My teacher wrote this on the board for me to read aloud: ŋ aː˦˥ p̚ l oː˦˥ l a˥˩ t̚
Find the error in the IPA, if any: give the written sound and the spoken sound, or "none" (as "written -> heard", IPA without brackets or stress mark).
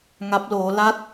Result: aː˦˥ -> a˦˥